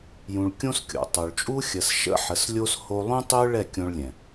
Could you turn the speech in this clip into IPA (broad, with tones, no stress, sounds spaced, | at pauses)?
j ũ˧ ɭ kʲ õ˦ s kʲ o̰˨ tˤ o˨ ɭ t͡ʃʼ u˦ xʲ ə˨ s ʃ ə̰˦ ħ ə˨˦ s lʲ o˦ s h o˧ lˠ ũ˦ tˤ ø˦ ɭ ɛ˦˨ kʲ õ˧ ɭ lʲ ɛ̃˨